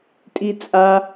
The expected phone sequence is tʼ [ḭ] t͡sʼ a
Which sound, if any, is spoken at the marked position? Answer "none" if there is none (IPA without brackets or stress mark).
i